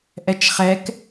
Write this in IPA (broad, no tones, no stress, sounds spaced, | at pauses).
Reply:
ʔ ɛ t͡ʃ χ ɛ k